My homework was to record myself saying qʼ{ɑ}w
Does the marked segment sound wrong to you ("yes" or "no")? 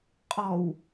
yes